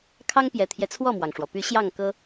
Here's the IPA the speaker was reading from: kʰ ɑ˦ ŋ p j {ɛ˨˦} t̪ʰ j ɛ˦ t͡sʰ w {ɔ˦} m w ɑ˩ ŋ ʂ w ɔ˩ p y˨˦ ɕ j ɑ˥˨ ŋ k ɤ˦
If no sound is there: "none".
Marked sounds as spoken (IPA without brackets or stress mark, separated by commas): ɛ˨˩, ɔ˥˨